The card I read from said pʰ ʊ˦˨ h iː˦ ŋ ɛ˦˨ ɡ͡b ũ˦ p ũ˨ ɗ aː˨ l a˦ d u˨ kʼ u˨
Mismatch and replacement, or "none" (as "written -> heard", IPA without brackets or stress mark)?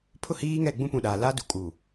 none